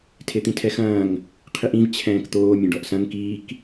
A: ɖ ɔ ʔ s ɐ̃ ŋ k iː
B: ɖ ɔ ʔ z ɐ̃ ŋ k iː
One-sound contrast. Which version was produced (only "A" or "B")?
A